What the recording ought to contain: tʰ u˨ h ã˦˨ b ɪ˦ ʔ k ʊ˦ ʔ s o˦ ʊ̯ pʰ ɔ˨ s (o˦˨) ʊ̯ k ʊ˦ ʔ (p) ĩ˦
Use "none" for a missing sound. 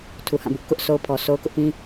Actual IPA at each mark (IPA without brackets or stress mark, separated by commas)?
o˦, p